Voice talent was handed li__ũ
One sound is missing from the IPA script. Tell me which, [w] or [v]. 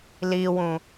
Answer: w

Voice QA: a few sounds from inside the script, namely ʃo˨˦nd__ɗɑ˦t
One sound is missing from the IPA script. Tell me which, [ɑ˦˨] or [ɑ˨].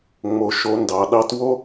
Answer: ɑ˨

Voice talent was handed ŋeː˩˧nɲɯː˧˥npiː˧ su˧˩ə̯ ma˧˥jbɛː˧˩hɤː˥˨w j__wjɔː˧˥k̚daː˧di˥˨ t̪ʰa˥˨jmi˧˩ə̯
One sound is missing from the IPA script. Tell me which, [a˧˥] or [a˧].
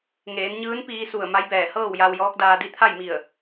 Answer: a˧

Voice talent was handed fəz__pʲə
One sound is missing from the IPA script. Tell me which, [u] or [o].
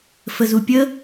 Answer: u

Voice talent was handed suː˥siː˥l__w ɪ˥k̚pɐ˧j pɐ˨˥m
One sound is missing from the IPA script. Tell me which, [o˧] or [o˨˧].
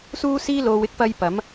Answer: o˧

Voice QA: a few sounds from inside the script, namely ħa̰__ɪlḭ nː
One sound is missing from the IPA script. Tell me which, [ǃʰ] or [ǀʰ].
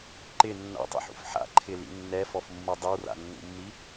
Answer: ǃʰ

